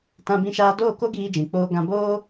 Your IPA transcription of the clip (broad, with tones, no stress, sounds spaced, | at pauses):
t ã˧ b ĩ˧ ʃ aː˧ d oː˦˨ k o˦ ɡ iː˧ d͡ʒ ĩ˨ k͡p oː˧ ɡ ã˧ b oː˦